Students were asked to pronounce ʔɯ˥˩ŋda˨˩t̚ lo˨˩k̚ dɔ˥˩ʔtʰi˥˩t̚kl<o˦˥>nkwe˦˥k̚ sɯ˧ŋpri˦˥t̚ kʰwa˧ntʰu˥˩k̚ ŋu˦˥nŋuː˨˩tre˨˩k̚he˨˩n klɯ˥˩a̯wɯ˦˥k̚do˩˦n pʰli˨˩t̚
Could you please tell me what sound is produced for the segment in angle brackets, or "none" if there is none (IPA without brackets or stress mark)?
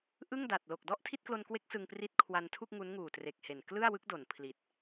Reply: o˧